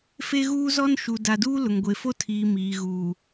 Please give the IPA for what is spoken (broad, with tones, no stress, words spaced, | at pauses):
fe˦ɣuː˦zɔ˦n ʃu˨ da˨duː˦ lʊ˨ŋɡʷe˨fo˦tʰiː˨ miː˨ ɣuː˨